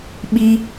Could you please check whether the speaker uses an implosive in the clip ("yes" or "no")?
yes